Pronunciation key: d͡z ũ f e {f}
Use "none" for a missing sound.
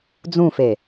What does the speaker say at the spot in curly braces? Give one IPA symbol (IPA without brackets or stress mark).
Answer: none